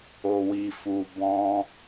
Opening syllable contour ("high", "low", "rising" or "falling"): low